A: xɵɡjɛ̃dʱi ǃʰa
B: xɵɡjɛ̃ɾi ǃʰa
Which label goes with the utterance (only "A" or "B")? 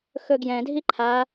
A